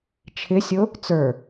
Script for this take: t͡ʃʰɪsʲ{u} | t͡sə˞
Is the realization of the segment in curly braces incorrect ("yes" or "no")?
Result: yes